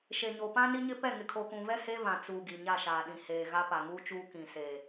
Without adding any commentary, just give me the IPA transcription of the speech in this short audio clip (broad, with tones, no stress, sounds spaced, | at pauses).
ʃ e˨ ɲ o˨ p ã˦ n i˦ ɲ ɪ˦ p ɛ˦˨ ŋ ɪ˨ kʰ o˨ k ũ˨ v ɛ˦ h e˦ v ã˨ t͡s u˨ ɡ i˨ ɲ a˦˨ ʃ aː˨ ɗ ĩ˨ h eː˨ ɣ a˦ p a˨ ŋ uː˦ t͡ʃ uː˦ k ĩ˨ s eː˨